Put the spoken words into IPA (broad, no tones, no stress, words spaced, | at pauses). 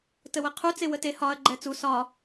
təwəqʰu t͡sewəte hɒɐ̯ ɡ͡ǃɛt͡su sɒ